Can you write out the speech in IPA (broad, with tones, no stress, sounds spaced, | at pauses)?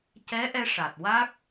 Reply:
c ɛ˧˥ ʔ ɛ˧ ʂ a˨˩ t̚ w a˦˥ k̚